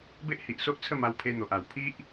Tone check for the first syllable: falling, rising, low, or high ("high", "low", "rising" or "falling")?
high